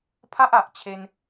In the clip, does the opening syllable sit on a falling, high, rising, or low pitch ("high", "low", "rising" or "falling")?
high